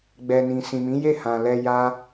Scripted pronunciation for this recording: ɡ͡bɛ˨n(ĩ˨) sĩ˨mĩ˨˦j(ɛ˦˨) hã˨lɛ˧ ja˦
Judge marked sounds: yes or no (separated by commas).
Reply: yes, no